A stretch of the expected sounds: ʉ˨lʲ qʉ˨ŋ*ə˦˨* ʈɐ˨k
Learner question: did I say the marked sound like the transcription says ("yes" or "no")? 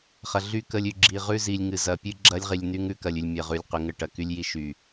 yes